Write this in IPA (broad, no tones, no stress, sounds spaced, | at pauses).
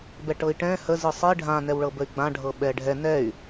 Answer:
b ɛ ʈ ɤ i̯ ʈ ɛ̃ h ə z ɯ sˤ i ɖʱ ã n ɛ w ɭ ɤ b ə y̯ ɡ͡b ã ɖʱ ɤ ɓ ɛ ɖʱ ɛ n ɛ y̯